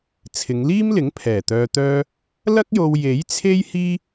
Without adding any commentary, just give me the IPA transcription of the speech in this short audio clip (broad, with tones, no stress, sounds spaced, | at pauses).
t͡sʰ ɪ˨˧ ŋ l iː˥ m l ɪ˨˥ ŋ pʰ ɛː˨˩ t̪ œː˧ t̪ œː˥ | l ɐ˥ k̚ j o˧ w j e˨˥ j t͡sʰ e˥ j h iː˥